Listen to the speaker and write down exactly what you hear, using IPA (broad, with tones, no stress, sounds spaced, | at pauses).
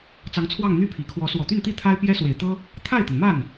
t͡s ɑ˧˥ ŋ t͡sʰ w ɑ˥˧ ŋ n̪ y˥˩ pʰ i˨˩ kʰ w ɔ˧˥ s w ɔ˨˩ t̪ y˥˧ n t̪ i˥˩ t̪ʰ a˥ ɪ̯ p j ɛ˥ s w e˨˩ ɪ̯ t̪ ɤ˥ | t̪ʰ a˥˩ ɪ̯ t̪ ə˩ n m a˥˩ n